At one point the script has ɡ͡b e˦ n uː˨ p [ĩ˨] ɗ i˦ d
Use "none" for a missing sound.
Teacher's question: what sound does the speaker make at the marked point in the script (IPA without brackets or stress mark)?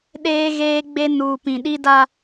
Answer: ĩ˨